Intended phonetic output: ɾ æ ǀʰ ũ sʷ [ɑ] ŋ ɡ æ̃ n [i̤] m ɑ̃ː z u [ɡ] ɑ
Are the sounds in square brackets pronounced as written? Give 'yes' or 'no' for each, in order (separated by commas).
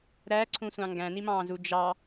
no, no, no